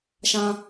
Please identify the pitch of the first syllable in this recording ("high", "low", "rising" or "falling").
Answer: high